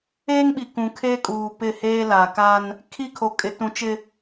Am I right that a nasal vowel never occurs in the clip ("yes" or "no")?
no